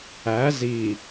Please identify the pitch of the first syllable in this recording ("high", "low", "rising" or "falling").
rising